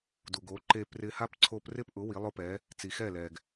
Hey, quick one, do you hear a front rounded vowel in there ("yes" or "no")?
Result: no